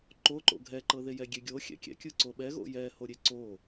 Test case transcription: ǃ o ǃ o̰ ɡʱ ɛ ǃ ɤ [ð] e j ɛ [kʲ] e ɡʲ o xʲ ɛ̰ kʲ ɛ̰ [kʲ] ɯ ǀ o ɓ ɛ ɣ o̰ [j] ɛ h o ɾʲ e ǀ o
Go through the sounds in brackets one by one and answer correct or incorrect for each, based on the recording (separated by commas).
correct, incorrect, correct, correct